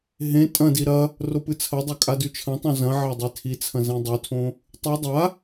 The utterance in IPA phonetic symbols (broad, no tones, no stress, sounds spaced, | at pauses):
ɦ ẽ tʼ ɐ̃ d i ɾ ɐ | r o p ɨ t͡sʰ ɐ dˤ ɐ kʼ a d ʉ t͡ʃʰ ɐ̃ tˤ õ z ɐ̃ ʕ a dˤ e tʰ i t͡sʰ ɐ̃ z ẽ dˤ ɵ tʰ õ | tˤ ɨ dˤ a